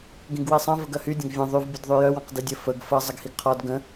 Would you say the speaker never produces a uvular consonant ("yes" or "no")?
no